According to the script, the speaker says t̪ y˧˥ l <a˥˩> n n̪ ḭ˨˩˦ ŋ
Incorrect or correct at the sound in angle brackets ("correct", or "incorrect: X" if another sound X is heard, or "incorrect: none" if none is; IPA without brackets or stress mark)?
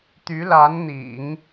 incorrect: a˧˥